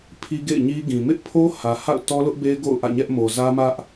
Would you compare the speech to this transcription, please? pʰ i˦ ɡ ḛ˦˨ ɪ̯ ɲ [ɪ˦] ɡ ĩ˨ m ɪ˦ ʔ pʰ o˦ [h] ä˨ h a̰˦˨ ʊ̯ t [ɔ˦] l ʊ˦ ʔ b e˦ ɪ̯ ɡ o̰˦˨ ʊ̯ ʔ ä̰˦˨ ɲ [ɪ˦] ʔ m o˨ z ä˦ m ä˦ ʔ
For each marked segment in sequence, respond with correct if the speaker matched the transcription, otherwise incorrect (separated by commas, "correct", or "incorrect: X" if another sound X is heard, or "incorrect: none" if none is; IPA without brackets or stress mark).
incorrect: i˦, correct, correct, incorrect: ɛ˦